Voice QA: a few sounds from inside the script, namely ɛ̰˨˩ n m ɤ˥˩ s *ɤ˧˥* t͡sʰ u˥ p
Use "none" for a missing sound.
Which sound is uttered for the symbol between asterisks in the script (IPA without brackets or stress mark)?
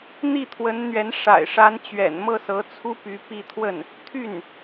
ɤ˧˥